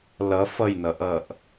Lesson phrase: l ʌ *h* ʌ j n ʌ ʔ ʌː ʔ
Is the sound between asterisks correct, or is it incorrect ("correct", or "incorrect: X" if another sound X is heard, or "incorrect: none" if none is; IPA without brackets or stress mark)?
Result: incorrect: f